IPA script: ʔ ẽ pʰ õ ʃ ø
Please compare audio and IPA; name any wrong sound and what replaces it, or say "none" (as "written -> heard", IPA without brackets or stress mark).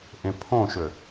none